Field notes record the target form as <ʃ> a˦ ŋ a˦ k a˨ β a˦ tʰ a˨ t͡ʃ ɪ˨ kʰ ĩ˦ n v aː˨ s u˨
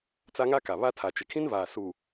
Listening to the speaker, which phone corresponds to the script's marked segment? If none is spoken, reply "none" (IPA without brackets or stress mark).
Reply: t͡s